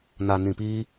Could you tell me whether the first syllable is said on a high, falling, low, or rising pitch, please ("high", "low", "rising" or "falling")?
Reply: low